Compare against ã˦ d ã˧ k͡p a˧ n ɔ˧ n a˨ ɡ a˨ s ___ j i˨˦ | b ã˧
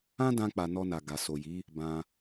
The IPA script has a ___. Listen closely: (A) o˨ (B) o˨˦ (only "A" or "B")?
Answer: A